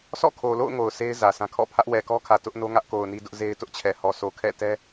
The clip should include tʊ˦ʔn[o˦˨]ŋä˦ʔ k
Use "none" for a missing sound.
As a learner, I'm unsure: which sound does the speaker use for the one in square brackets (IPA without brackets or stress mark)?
o˦